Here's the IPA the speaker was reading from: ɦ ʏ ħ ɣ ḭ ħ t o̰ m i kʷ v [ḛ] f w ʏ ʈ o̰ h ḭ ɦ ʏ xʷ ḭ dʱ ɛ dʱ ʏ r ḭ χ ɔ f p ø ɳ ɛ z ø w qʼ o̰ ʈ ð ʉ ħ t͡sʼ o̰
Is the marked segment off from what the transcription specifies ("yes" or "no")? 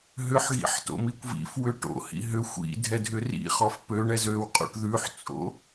yes